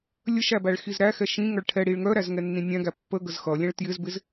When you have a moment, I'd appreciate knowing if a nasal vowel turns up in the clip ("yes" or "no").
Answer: yes